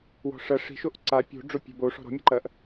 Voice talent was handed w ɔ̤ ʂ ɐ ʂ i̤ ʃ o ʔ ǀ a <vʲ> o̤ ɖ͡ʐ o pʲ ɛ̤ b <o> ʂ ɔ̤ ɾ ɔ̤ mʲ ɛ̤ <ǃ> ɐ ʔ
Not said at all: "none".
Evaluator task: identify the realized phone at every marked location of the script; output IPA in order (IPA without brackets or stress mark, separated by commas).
pʲ, o, ǃ